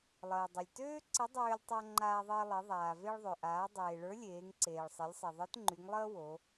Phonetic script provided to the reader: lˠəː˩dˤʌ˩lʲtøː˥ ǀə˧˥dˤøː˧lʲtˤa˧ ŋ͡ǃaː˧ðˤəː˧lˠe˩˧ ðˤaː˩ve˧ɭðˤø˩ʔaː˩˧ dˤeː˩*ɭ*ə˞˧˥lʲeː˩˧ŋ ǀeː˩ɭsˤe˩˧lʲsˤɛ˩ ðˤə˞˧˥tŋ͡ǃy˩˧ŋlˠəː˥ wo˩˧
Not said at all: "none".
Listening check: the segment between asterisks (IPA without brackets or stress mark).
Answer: ɭ